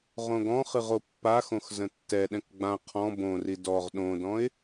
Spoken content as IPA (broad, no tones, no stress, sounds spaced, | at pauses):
ʁ õ ɡ ɔ̃ χ ɨ ʁ o pː a x õ x z ə̃ tː ɛ ɗ ɛ̃ k ɡ͡b ã qʰ ɔ̃ b õ r i d ɔ ʁ ɗ õ d ɔ̃ ɪ̯